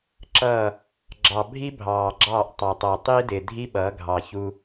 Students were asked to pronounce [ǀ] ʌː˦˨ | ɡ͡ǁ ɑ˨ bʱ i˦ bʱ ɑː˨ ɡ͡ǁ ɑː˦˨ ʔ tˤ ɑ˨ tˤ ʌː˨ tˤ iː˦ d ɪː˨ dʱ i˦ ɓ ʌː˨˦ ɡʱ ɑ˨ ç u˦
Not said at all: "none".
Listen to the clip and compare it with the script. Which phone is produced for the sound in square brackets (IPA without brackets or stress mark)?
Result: ǁ